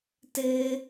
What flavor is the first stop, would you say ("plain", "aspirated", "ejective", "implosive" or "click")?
plain